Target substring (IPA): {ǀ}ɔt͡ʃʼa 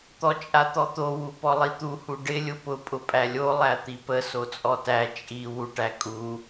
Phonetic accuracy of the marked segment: incorrect: t̪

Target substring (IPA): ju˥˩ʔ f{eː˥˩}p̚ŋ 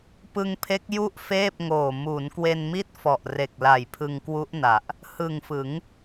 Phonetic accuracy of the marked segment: correct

